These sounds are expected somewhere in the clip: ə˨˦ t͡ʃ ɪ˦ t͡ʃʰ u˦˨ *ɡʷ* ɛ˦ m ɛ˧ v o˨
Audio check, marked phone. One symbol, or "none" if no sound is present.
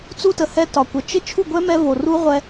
ɡʷ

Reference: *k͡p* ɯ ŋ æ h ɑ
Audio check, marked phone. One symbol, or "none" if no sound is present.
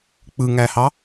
k͡p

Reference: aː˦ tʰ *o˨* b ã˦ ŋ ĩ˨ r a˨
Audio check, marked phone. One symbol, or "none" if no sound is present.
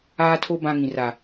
o˦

